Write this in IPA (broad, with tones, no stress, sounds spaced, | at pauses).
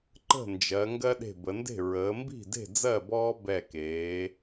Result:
ǃ ə̤˥˩ n d͡ʒ ɜ˩˧ ŋ ɡ ɜ˦ ɗ e̤˧˩ b ə˩˧ n d e̤˥˩ ɹ əː˩˧ m b i̤˥˩ d e̤˥˩ d͡z ɜ˥˩ b ɔː˦ b ɛ˧˩ k eː˩˧